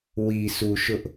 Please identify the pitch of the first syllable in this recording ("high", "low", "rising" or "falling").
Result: low